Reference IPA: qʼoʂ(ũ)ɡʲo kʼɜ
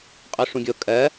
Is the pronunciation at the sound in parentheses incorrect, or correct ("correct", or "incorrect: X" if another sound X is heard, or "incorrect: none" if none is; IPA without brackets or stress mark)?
correct